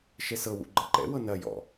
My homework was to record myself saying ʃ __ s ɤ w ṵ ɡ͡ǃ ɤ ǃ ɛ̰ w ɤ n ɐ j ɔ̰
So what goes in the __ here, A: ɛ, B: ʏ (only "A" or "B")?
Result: A